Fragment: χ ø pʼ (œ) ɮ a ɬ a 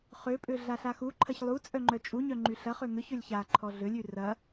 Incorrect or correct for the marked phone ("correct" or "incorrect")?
incorrect